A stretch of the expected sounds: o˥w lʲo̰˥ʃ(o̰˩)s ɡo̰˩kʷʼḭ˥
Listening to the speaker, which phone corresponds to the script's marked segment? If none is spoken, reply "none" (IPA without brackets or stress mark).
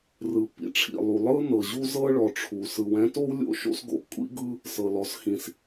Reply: o̰˥